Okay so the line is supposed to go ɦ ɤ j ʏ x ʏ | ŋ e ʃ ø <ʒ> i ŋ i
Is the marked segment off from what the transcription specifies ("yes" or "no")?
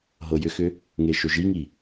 no